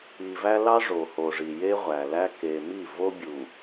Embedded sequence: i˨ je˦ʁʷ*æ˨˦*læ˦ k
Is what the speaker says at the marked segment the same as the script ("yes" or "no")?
no